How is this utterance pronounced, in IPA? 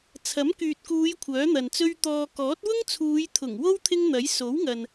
t͡sʰ ɐ˨˥ m k yː˨ t̚ k uː˨˧ j kʷʰ œː˨˥ n̪ ɐ˨ n t͡s ɵ˥ ɥ t̪ ɔː˧ k ɔː˨˥ t̚ w ʊ˥ ŋ t͡sʰ uː˨˧ j t̪ʰ ʊ˨˩ ŋ w o˥ w t̪ʰ ɪ˥ ŋ n̪ ɐ˨˥ j s o˨˥ w ŋ ɐ˨ n

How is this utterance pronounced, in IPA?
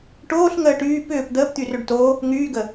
ʈ oː ɬ ŋ əː ʈ yː p ʏː p d̪ əː p t̪ y r ø ɖ t o | ŋ yː ɡ ə

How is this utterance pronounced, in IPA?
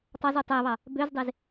tˤ ɑ z u tˤ æ β ɑ | b ø z dˤ e z

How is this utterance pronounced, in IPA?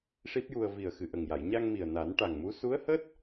ʂ i˦˥ p̚ j u˧ ə̯ v i˨˩ ə̯ x ɨ˨˩ ʔ ə˨˩ ŋ j a˨˩˨ j ɲ a˧ ŋ m i˨˩ ə̯ n a˨˩˦ n ʈ a˨˩ ŋ m u˧˥ s u˧˥ ə̯ h əː˦˥ t̚

